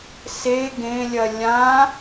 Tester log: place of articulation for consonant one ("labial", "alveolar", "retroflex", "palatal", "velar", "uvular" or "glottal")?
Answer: alveolar